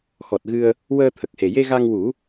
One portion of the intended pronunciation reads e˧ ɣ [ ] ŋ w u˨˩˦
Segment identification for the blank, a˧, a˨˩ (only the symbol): a˧